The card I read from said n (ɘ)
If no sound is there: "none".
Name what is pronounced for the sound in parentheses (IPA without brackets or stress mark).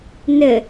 ɘ